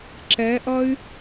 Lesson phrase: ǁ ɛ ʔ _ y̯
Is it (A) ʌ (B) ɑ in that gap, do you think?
A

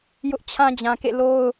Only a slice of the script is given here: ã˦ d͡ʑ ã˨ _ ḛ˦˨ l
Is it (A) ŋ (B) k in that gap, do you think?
B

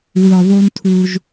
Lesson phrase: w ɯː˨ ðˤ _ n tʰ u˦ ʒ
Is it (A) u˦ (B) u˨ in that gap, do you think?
A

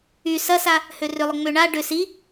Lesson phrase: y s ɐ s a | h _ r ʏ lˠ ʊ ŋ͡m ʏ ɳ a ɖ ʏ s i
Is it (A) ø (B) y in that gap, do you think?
A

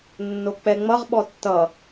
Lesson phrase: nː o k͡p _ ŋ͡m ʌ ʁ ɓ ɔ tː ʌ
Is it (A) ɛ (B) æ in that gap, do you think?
A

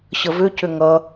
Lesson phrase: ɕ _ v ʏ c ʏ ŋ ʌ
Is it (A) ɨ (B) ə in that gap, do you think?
B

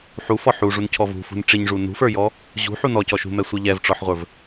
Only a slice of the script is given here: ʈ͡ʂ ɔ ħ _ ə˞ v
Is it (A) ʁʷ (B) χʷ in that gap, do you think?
A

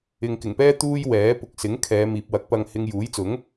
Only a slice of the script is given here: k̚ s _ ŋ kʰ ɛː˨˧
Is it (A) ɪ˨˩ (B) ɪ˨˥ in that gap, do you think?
B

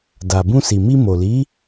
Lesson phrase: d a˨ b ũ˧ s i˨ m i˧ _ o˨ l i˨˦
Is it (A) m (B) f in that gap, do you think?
A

